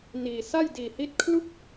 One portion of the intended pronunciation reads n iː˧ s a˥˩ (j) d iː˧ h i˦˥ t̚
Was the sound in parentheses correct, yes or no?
yes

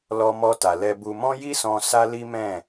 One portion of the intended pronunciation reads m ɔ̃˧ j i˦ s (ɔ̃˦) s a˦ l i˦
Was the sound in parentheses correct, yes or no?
no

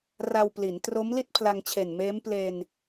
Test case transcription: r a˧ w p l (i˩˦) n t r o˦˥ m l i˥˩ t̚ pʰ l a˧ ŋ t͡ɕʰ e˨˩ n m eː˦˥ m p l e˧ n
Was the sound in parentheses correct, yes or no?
yes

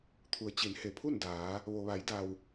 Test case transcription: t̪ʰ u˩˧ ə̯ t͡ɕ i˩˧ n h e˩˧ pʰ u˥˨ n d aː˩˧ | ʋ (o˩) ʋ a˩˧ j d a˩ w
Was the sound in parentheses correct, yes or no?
yes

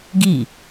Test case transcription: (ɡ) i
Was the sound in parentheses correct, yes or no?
yes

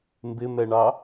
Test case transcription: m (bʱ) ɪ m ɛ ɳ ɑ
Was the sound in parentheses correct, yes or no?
no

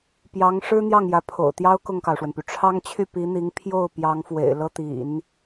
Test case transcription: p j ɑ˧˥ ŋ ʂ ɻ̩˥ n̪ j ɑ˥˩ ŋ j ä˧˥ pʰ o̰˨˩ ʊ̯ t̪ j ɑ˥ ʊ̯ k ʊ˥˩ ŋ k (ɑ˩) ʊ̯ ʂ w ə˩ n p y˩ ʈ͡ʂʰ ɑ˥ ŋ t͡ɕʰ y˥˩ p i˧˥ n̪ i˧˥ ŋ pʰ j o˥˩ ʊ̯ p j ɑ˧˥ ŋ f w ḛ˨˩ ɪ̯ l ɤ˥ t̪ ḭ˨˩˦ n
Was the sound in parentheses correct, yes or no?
yes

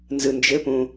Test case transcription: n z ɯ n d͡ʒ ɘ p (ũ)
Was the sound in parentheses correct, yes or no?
yes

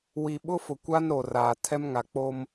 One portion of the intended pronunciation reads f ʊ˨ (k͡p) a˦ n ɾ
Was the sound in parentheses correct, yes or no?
no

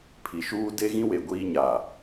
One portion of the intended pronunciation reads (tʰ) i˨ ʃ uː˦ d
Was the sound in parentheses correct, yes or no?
no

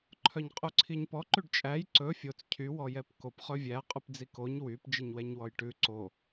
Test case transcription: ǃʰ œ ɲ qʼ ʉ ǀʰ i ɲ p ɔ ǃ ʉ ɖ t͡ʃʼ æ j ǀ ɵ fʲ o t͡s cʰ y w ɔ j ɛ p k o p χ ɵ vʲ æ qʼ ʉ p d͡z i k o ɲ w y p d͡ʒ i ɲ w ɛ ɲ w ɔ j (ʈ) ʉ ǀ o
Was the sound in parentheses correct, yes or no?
yes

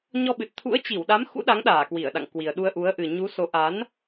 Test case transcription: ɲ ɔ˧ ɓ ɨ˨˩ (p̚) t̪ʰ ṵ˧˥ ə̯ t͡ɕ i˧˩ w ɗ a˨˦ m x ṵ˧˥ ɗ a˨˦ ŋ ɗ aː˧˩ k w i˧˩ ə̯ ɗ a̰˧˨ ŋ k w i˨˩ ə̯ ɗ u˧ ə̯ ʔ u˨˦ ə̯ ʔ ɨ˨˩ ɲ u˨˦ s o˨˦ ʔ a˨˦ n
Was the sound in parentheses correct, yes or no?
no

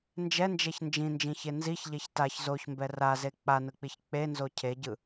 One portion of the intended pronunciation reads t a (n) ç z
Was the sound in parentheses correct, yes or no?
no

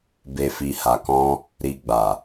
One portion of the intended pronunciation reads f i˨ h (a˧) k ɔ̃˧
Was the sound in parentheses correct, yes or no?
no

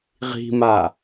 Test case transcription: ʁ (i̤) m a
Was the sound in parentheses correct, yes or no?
yes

